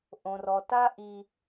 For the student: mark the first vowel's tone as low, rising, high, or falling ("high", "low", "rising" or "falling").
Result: low